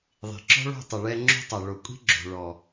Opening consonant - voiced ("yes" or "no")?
yes